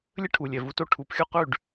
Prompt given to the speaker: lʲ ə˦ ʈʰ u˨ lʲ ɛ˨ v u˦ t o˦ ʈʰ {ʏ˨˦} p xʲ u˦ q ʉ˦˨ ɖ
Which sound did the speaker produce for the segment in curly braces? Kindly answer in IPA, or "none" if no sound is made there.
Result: u˨˦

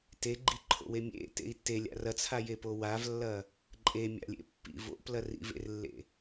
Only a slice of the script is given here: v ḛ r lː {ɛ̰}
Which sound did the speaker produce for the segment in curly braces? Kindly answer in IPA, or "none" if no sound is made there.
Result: ḛ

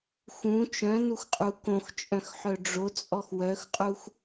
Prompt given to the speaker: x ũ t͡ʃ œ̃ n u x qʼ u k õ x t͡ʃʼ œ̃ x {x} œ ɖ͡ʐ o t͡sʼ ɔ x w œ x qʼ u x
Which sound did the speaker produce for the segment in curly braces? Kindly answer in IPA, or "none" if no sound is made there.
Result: ħ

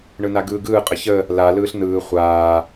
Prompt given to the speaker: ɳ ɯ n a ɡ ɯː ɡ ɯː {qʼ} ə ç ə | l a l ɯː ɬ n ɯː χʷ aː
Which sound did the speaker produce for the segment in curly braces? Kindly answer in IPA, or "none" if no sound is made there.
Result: qʼ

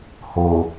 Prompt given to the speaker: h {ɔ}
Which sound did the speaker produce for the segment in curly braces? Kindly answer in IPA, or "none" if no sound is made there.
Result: o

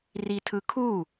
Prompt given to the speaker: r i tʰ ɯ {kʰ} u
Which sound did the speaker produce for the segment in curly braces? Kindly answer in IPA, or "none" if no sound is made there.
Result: kʰ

